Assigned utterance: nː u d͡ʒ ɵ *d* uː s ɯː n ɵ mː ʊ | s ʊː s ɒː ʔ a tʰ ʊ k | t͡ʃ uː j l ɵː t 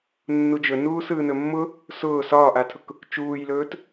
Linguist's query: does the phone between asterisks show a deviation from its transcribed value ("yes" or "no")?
yes